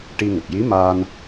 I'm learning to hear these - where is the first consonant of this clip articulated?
retroflex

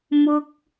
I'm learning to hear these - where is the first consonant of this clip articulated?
lips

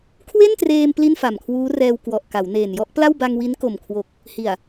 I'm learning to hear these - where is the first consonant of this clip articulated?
velum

